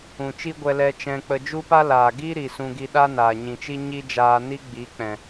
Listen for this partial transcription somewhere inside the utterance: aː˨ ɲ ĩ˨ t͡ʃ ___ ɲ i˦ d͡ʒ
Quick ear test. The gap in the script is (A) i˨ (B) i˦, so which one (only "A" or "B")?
B